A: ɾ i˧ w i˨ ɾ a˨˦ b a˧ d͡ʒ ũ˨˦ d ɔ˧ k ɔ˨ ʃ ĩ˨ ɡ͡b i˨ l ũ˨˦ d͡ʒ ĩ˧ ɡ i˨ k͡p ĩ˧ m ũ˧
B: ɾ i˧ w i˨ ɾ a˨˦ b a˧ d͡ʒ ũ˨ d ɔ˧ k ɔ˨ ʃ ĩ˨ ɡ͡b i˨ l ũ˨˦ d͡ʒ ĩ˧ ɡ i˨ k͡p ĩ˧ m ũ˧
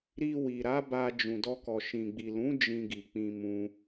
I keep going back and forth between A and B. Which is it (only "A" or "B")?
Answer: B